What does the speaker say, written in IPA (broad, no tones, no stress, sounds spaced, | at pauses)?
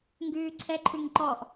ŋ ɡ ʉː ǀʰ ɛ ǃʰ ʉ ŋ ǃ ɔ ʔ